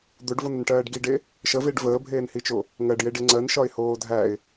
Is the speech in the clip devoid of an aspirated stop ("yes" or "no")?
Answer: yes